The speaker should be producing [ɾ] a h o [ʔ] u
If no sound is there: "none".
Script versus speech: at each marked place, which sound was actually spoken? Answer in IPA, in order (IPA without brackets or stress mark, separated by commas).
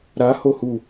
ɾ, h